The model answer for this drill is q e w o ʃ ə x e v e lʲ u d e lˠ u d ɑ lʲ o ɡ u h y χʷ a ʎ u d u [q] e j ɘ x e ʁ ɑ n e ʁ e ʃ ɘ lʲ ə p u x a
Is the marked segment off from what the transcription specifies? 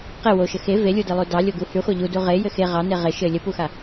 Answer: yes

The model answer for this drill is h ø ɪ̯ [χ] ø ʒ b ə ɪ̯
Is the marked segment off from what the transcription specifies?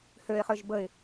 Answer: no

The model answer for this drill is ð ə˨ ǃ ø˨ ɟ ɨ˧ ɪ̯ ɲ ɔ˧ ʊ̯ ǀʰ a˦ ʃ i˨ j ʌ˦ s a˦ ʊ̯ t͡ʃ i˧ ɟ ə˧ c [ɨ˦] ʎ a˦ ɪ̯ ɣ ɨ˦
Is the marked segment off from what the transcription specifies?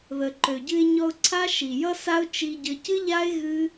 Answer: no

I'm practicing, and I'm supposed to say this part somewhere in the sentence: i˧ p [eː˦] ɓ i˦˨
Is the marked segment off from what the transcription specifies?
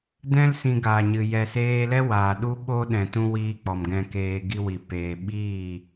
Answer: yes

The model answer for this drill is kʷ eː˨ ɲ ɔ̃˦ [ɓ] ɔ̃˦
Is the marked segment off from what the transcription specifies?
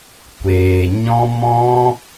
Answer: yes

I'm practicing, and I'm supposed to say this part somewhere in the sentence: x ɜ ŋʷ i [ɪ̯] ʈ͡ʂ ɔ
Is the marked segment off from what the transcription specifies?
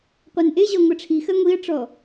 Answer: yes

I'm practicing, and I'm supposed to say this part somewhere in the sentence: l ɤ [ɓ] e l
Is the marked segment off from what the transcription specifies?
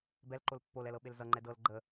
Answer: no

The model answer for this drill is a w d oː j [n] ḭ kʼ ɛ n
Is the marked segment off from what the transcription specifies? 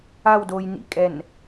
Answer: no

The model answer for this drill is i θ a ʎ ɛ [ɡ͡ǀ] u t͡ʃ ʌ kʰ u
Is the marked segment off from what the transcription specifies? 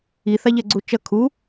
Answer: no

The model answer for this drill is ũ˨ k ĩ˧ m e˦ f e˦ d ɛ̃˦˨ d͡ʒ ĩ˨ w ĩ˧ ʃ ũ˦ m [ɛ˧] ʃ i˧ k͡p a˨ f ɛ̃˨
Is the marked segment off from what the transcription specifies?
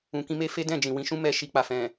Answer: no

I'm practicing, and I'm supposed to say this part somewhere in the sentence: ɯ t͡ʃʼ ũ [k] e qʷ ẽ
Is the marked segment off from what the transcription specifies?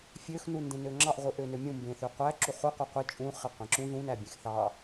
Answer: yes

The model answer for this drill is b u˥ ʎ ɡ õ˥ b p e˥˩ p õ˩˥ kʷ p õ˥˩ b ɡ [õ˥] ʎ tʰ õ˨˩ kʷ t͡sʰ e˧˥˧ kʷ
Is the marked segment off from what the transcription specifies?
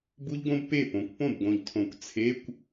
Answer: yes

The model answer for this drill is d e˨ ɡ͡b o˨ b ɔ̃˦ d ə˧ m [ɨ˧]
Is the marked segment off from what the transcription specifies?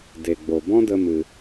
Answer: no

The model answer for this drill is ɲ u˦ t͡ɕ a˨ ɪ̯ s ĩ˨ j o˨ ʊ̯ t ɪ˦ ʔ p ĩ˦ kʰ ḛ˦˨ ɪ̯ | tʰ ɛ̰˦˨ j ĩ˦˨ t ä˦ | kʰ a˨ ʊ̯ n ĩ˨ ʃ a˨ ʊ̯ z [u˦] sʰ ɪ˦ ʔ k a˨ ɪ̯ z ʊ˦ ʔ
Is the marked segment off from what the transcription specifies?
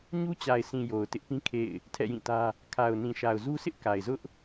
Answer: no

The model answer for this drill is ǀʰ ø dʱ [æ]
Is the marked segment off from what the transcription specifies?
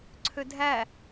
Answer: no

